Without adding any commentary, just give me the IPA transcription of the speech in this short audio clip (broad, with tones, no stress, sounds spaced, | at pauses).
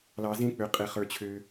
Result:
l ɑ˧ z ẽ˦ k͡p ø˧ qʼ e˧ χ ə˞˧ t͡ɕʰ ø˧